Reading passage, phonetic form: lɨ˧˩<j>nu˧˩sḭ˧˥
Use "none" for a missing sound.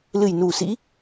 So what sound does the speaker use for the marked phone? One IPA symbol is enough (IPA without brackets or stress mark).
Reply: j